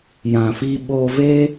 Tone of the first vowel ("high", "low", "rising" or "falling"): low